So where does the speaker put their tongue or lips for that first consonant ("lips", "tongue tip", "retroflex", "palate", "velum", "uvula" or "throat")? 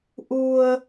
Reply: throat